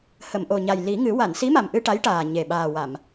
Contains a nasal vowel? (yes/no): no